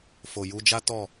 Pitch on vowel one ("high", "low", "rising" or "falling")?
low